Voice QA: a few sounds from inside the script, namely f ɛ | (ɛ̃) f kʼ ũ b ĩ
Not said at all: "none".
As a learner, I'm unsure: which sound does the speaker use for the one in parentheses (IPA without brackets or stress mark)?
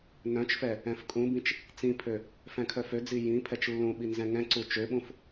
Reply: ɛ̃